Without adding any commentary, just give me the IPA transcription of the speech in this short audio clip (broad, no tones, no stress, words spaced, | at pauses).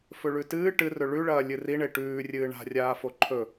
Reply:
fɵɭʉtɨː ʈɨrɵ ɭʉɭɐː lʲɨriɳe ʈʉːrʲɨː ɳa̤rʲaːfo ǃʰɵ